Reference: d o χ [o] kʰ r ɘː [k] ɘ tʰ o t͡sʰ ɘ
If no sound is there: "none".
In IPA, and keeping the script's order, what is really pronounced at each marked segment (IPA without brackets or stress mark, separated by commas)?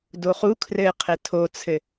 u, qʰ